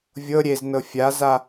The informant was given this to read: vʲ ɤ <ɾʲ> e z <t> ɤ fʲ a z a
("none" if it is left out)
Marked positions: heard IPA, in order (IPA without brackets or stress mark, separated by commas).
ɾʲ, n